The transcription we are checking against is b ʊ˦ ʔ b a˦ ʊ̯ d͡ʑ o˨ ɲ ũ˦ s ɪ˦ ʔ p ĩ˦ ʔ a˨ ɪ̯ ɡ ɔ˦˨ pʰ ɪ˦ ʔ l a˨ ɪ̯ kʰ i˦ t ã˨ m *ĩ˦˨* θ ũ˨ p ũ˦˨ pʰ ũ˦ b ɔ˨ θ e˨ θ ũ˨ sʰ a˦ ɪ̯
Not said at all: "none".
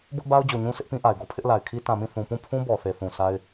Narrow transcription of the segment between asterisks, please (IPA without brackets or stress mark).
ĩ˦˨